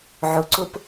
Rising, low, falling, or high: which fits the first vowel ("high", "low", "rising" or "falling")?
low